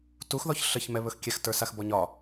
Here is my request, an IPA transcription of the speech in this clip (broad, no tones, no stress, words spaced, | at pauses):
tuxðɔç ɬəçmɛβɵx kʲɛxtə˞saxbɔ ɲɒ